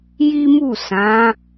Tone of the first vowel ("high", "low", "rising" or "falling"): high